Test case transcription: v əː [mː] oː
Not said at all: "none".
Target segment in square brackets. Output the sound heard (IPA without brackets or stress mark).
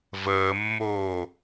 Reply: mː